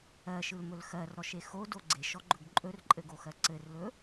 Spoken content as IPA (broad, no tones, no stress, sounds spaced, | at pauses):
ɜ ʃ ɯ l m ɵ l x ɜ r ɾ ɔ ʃ e x o d o ɡ͡ǀ e ʃ ɔ ɡ͡ǃ ɵ ɡ ǃʼ ɵ r ǃʼ ɘ ɡ o x ɜ ǀ ɘ r l ɵ